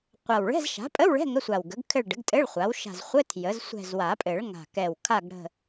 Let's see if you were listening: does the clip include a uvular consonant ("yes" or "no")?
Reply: yes